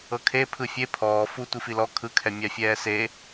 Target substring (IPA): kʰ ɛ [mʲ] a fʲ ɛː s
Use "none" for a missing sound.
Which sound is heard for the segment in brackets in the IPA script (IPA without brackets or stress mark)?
mʲ